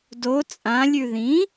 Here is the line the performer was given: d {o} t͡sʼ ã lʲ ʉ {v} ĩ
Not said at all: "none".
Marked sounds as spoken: o, ð

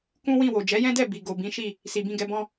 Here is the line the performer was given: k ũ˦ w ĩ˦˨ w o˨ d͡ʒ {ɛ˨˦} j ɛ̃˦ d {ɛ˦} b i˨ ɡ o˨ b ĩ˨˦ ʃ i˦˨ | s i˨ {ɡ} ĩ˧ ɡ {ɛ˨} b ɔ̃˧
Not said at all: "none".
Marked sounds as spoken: ɛ˨˦, ɛ˦˨, b, ɛ˨

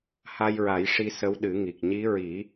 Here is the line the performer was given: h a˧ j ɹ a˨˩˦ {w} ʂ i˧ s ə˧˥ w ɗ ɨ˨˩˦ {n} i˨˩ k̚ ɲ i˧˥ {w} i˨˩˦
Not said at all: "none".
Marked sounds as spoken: j, ŋ, ɹ

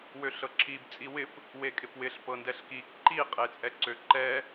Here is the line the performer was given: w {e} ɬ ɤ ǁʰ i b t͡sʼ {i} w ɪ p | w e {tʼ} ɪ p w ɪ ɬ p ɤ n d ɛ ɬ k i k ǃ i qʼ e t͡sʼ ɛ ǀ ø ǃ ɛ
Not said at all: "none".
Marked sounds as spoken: ø, i, kʼ

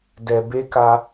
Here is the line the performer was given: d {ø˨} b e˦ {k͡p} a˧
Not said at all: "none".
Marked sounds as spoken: ɛ˨, k

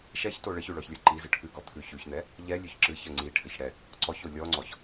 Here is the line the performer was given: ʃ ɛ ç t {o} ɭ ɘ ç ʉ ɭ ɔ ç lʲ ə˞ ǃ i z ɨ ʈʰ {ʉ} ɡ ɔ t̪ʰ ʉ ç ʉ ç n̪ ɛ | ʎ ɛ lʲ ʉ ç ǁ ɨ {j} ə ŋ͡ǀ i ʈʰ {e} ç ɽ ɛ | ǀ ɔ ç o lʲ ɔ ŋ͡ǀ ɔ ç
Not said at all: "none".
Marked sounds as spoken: o, ʉ, ç, ɘ

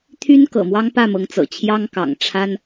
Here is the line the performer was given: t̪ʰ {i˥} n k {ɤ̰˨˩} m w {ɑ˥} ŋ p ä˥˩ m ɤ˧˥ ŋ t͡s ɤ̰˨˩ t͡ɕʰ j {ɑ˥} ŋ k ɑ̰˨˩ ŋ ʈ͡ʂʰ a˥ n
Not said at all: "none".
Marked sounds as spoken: y˥, ɤ̰˨˩, ɑ˥, ɑ˥

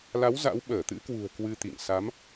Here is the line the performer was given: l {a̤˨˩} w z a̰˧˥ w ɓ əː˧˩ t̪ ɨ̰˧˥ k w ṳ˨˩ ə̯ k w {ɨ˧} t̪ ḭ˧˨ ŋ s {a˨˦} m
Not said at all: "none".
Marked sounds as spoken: a˨˦, ɨ˧, a˨˦

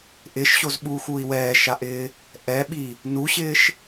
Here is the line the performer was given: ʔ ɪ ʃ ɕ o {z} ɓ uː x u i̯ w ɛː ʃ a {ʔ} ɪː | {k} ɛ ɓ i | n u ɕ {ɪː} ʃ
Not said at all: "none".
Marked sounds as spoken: z, ʔ, ʔ, ɪː

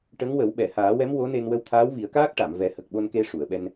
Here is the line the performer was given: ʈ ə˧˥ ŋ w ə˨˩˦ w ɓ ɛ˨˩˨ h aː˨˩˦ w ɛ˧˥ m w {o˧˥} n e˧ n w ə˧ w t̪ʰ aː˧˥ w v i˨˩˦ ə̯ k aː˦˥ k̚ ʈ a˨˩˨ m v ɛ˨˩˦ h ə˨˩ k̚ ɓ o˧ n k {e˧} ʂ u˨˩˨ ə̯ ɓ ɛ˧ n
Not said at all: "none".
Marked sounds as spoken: o˧˥, e˧

